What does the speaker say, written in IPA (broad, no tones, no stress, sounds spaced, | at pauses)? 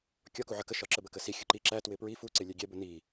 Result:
kʲ ɒ k u ʕ ə k ə ʃ ɒ ǁ ə b ə k ə s i xʲ ʊ ǃ i ǁ æ t w ɪ p ɹ i f u ǀ ɪ lʲ ɛ ɡʲ ɛ b ʊ n i